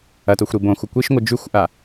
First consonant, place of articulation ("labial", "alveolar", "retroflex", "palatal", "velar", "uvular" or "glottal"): alveolar